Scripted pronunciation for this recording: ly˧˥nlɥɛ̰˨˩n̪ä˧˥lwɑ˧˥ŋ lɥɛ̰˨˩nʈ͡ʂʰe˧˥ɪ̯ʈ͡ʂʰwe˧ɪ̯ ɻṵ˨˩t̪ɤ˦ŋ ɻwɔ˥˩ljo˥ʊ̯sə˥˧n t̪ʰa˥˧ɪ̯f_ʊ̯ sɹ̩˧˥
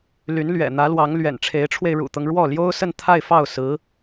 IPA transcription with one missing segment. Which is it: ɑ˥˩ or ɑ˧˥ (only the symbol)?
ɑ˥˩